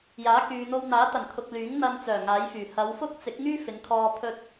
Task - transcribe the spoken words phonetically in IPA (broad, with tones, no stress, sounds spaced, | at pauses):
j aː˨˥ k yː˨ n̪ o˧ w n̪ aː˨˥ t̪ ɐ˨˩ n kʰ ʊ˨ k̚ l yː˨˥ ŋ n̪ ɐ˧ n t͡s œː˨˩ ŋ aː˨˥ j f yː˨˩ h ɐ˨˧ w f ʊ˥ k̚ t͡s ɪ˨˥ k̚ ŋ yː˥ f ɪ˨˧ ŋ kʰ ɔː˧ pʰ ɵ˥ t̚